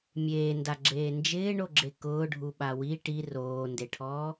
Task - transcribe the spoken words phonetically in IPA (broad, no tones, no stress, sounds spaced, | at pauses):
mʲ eː n d a ɡ͡ǁ eː n d͡ʒ ɪː ɳ o ɡ͡ǁ e k ʊː ɖʱ u ɓ a w i ʈ i r oː n d e ʈʰ ɔː